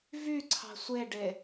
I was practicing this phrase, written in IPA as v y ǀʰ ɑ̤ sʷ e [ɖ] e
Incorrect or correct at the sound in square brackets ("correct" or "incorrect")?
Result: correct